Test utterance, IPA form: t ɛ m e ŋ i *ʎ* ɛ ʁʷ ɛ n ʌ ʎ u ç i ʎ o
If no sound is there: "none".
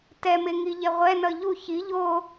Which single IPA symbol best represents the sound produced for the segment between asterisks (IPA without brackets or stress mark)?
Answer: ʎ